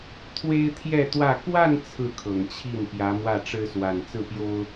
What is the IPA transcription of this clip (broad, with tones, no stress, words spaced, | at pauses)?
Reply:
t̪ʰwe˥ɪ̯t̪ʰjɛ˥˧t̪wä˥˧ kwa˥˧n t͡sʰɹ̩˥˩kʰɤ˨˩ŋt͡ɕʰi˥˩n pjä˧˥mwä˥˩ʈ͡ʂɻ̩˥swa˨˩n t͡sɹ̩˥˩pjo˥ʊ̯